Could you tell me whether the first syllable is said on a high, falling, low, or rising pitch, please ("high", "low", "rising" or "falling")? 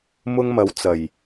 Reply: high